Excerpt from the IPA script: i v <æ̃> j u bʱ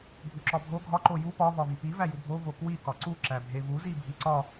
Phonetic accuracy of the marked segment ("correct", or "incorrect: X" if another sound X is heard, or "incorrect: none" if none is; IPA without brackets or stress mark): incorrect: æ